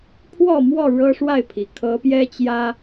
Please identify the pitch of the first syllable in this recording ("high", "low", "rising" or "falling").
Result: falling